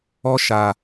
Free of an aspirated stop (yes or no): yes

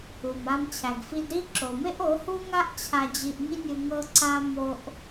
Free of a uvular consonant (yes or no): yes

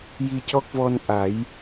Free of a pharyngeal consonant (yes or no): yes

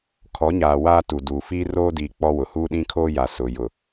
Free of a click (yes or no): yes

